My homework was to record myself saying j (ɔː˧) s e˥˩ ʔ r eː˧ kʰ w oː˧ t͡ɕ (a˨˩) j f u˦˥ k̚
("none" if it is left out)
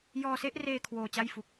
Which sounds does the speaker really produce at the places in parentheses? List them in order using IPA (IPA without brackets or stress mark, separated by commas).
ɔː˧, a˥˩